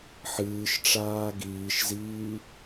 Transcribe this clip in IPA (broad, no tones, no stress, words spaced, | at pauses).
ħɨːʃʈ͡ʂaː ɡiːʃziː